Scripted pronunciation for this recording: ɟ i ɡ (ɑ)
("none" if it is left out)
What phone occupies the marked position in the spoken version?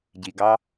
ɑ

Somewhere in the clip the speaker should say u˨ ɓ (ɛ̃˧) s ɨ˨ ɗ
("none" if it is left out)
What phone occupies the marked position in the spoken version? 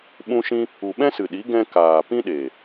ɛ̃˦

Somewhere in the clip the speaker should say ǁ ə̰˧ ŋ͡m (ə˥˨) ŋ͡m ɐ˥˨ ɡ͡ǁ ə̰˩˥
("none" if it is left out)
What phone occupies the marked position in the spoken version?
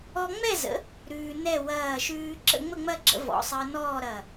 ə˥˨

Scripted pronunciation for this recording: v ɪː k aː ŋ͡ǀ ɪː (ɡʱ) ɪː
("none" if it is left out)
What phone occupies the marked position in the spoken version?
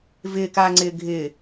ɡʱ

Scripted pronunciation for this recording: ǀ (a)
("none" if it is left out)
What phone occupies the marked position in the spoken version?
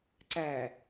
æ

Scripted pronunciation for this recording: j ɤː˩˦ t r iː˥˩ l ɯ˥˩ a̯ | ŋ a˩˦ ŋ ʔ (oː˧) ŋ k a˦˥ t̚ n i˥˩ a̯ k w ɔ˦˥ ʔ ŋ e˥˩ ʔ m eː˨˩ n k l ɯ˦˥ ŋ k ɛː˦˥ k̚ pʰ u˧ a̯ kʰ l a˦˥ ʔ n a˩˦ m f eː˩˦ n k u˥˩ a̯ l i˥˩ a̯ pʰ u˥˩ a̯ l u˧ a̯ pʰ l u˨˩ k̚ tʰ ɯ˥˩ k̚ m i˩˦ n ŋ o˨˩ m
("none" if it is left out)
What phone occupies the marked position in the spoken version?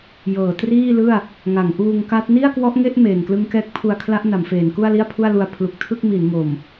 uː˧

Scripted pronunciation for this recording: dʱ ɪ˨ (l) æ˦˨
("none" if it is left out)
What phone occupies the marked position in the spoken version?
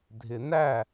n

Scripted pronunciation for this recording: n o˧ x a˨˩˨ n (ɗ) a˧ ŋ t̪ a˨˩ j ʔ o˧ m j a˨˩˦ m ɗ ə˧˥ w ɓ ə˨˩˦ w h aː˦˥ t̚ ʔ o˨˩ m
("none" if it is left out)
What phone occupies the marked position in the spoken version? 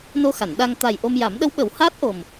ɗ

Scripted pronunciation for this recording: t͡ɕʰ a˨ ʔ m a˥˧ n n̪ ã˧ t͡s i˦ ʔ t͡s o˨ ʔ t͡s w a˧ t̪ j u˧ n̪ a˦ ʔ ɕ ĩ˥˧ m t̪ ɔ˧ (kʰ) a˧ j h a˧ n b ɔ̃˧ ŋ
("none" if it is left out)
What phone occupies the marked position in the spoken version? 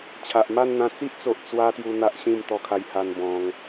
kʰ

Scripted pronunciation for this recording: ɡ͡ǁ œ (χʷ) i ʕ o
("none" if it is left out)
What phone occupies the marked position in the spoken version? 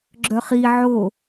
χ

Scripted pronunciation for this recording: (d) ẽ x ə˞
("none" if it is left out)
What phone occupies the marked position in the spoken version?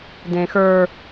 d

